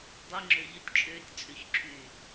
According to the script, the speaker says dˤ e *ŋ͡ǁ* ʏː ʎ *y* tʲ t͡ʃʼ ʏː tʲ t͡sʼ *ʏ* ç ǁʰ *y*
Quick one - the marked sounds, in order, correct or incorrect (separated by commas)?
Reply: correct, incorrect, correct, incorrect